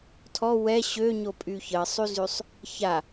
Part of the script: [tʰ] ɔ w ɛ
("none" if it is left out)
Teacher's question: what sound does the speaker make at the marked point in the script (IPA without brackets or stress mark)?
tʰ